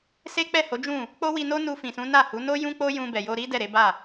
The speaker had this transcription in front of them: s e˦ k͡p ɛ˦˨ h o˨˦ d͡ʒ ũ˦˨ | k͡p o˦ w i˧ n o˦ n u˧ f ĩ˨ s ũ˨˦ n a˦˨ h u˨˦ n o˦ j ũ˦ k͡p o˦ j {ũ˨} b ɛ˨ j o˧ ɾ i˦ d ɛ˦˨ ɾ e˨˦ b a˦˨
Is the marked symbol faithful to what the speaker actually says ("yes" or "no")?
no